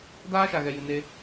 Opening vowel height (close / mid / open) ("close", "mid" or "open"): open